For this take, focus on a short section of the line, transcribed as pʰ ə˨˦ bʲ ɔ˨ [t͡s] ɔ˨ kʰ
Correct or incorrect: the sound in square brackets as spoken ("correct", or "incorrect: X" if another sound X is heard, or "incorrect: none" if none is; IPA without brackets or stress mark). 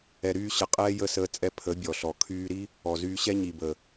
incorrect: ɬ